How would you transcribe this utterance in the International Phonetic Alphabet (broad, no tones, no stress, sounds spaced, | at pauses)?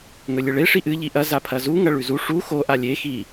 ŋ ɵ lʲ ɨ ɭ e ʂ i ʔ ɨ ʎ i ʔ ɐ z a pʰ ɐ z u ŋ ɐ ɭ ʉ z u ʂ u x o ʔ a lʲ e x i